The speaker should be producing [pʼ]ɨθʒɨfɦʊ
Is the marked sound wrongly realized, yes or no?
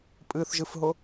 no